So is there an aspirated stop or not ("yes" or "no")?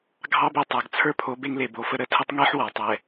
yes